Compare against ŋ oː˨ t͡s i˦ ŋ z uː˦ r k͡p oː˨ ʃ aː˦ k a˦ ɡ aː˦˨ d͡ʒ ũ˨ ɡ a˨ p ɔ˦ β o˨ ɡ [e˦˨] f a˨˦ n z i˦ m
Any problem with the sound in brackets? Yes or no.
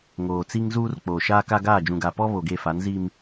no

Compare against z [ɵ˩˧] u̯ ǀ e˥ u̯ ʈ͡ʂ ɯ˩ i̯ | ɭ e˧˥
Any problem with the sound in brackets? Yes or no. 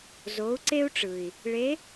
yes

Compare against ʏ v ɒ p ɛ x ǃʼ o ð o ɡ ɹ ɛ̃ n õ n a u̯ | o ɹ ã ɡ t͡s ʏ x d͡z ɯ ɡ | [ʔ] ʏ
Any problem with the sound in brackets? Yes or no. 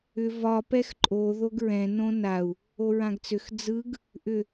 no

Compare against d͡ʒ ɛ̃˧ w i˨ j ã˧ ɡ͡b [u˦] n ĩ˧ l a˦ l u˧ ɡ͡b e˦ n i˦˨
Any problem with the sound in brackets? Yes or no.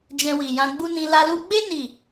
no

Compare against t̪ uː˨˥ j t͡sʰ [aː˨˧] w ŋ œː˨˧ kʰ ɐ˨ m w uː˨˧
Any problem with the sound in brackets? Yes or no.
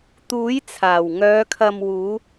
yes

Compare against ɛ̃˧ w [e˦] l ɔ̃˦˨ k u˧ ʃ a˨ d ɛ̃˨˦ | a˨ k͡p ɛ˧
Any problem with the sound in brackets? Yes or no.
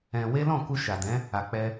no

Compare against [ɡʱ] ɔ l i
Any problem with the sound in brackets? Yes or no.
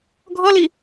no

